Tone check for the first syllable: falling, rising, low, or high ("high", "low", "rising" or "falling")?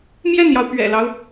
falling